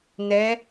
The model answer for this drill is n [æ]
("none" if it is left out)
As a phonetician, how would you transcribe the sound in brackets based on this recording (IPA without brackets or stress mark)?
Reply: ɛ